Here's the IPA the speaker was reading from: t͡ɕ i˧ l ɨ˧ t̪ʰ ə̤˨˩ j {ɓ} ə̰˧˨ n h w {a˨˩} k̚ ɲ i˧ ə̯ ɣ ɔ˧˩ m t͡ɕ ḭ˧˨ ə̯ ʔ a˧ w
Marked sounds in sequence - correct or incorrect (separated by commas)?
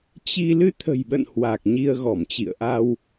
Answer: correct, correct